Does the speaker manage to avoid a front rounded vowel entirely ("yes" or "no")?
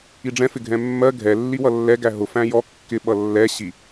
yes